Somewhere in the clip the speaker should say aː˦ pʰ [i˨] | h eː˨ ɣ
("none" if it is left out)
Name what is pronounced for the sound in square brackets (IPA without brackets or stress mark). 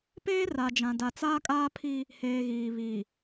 i˦